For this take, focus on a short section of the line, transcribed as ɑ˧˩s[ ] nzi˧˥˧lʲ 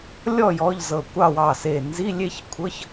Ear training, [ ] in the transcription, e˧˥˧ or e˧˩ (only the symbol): e˧˩